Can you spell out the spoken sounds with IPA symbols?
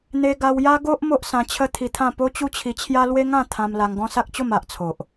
n̪ e˧ ɡ a˧ w j a˦ ɡ o˦ ʔ m o˦ ʔ s ã˧ t͡ɕʰ ə˦ t̪ʰ i˧ t̪ʰ ã˥˧ p o˦ t͡ɕ u˦ t͡ɕʰ i˧ t͡ɕʰ j a˦ l w e˦ ŋ ã˥˧ t̪ʰ ã˧ m l a˧ ŋ ɡ ɔ̃˦ s a˦ k̚ t͡ɕ o˥˧ m a˨ ʔ t͡sʰ o˨ ʔ

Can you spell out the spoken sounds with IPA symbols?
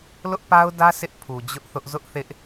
l ʊ˦ ʔ p a˦ ʊ̯ d ä˦ s ɪ˦ ʔ pʰ u˨ d͡ʑ ʊ˦ ʔ θ ʊ˦ ʔ z ʊ˦ ʔ θ ɪ˦ ʔ

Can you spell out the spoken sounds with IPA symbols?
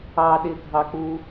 ɑ ɗ ɪ ɡʱ ɑ k͡p u

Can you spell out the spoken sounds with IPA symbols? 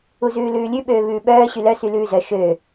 u z ʉː l ʉː lʲ ʉ ɓ øː β ʉː ɓ œː ɕ y l œ s y l ʉː z œ ʃ ø

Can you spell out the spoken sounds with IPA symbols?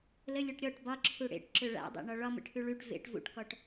l ə lʲ o ʈ ɾʲ ɔ ʈ b ɒ ǁʰ u ɽ ḛ ʈ ǁ ø ɭ a̰ dˤ ḛ ɳ ɒ ɭ ɒ m ə̰ ʈʰ ʉ ɭ ʉ ʈ v ḛ ʈ v ṵ ʈ k ɔ ʈ

